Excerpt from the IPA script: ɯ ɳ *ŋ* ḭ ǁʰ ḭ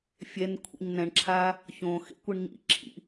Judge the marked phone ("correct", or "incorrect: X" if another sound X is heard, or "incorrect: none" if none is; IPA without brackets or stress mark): incorrect: ɲ